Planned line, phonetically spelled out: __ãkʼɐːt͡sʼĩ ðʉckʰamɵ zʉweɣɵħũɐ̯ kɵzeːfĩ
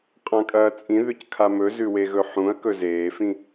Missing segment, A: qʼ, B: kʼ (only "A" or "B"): A